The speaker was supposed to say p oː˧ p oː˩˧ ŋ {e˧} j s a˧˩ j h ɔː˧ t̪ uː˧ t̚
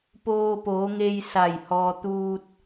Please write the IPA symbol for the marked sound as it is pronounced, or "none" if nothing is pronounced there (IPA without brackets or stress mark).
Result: e˧